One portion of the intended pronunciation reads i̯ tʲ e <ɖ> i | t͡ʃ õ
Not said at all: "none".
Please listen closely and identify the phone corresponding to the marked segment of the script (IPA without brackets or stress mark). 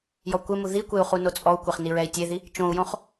ð